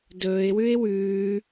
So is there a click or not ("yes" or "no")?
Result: no